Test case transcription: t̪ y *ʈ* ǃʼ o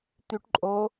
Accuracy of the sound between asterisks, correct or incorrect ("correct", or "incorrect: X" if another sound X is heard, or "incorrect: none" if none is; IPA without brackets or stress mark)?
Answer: correct